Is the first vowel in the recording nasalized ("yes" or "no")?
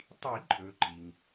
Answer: no